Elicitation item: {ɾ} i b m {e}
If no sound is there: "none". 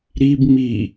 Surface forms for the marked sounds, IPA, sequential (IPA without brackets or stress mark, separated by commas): ɾ, i